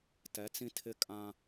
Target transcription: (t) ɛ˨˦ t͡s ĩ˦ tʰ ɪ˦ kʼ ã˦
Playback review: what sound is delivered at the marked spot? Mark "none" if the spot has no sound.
t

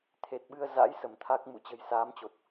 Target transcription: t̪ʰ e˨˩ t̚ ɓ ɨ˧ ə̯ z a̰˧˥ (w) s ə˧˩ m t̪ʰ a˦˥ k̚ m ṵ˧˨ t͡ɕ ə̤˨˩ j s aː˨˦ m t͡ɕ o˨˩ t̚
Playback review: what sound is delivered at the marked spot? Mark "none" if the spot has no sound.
j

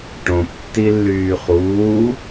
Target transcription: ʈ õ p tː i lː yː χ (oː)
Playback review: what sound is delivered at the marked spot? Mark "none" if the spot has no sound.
uː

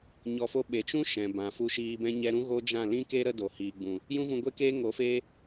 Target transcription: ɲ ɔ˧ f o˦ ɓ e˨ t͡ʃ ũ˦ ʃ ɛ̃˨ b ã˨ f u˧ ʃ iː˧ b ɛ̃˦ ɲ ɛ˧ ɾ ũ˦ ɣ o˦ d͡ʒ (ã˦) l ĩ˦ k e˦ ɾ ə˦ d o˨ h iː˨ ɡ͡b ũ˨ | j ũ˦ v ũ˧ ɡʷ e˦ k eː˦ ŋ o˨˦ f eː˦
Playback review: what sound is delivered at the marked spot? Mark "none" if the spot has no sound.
ã˦˨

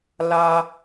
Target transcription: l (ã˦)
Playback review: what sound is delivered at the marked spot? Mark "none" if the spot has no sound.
a˦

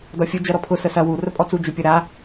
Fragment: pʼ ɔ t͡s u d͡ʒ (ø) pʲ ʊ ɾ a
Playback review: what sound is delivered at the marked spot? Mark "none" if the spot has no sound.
ø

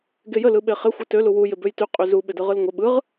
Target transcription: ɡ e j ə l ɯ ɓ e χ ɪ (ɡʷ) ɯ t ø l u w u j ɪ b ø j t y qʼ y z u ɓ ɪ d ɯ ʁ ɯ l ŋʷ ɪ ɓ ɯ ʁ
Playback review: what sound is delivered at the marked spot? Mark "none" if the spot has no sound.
xʷ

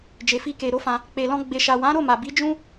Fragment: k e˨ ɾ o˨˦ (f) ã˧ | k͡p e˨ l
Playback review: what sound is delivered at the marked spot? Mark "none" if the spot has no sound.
f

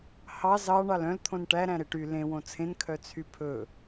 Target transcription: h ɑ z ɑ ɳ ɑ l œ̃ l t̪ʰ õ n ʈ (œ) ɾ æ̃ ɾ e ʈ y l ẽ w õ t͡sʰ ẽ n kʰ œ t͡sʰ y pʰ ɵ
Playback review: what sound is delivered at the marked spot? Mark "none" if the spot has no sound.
æ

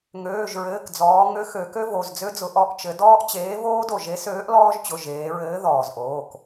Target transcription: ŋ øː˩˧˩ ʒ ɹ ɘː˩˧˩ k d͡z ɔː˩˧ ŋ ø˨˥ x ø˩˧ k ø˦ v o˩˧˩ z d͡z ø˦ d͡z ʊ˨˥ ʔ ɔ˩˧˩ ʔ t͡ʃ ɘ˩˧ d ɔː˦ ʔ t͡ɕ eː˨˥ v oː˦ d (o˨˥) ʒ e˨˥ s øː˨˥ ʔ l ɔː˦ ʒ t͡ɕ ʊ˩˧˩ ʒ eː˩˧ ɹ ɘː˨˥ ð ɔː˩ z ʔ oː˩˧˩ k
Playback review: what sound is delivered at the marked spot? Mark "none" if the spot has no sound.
o˧˩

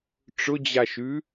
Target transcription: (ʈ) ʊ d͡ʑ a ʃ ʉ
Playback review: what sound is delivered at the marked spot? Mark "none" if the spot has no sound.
ʈ͡ʂ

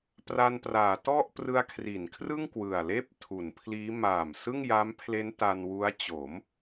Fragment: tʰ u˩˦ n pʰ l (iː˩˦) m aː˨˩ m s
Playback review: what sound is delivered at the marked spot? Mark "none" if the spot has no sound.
iː˦˥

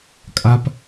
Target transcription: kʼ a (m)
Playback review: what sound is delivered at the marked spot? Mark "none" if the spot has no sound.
p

